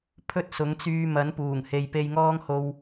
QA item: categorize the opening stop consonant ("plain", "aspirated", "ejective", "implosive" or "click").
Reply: aspirated